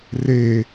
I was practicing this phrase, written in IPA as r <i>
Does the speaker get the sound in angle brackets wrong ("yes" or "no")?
yes